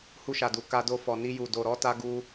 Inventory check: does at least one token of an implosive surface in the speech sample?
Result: no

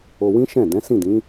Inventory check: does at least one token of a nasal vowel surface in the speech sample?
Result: yes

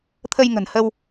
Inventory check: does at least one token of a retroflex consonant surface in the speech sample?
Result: no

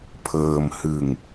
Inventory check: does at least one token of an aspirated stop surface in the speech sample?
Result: yes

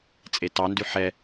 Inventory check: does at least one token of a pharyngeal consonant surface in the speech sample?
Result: yes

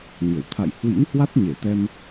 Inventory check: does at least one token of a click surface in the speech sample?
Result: no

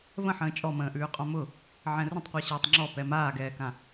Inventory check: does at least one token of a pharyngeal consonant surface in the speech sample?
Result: yes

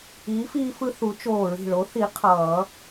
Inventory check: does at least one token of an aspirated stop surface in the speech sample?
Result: yes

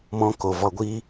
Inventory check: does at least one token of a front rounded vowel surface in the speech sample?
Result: no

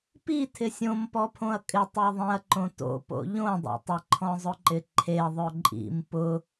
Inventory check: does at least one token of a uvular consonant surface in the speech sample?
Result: no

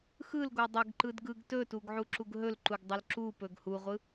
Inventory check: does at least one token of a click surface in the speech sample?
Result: yes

